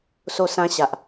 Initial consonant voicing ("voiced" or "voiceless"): voiceless